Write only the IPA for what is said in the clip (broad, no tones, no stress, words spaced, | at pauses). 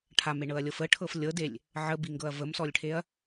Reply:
ʈʰameɳɤɐ̯lʲɤf əʈʰɤf lʲɤdelʲ | ʕəbiŋɡɤɐ̯ vəmsɔlʲʈʰeɐ̯